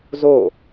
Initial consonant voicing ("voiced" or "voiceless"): voiced